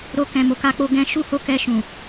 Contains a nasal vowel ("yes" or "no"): yes